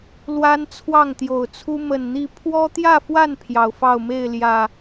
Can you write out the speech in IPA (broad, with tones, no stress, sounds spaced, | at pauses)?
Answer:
l w a˦ n t͡sʰ w ɑ˥˨ ŋ t̪ j o˨˩ ʊ̯ t͡sʰ u˦ m ə˨˩ n n̪ i˥˨ pʰ w ɔ˦ t̪ j ä˥˨ f w a˥˨ n pʰ j ɑ˨˩ ʊ̯ f ɑ˥˨ ʊ̯ m e˥˨ ɪ̯ l j ä˨˩